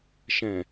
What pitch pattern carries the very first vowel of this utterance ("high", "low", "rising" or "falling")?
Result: low